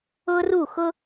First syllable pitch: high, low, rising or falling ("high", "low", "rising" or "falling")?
high